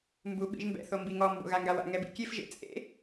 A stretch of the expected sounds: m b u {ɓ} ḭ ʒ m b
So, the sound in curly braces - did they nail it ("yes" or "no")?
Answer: yes